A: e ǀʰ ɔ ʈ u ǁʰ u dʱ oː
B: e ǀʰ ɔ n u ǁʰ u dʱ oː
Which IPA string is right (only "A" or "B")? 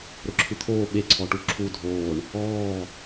A